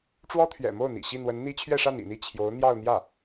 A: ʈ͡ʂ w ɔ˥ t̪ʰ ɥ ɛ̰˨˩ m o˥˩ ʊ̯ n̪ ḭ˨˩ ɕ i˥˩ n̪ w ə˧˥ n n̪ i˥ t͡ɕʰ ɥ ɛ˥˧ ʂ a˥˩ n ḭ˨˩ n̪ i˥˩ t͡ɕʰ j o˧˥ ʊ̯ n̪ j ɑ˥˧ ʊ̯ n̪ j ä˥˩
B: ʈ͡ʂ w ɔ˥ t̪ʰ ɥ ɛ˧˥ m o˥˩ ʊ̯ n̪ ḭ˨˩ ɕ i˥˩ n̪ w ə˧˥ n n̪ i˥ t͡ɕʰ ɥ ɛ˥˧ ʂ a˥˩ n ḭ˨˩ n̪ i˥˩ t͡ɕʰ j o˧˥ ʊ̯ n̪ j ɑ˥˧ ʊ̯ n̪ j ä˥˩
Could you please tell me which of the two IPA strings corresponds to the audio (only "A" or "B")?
A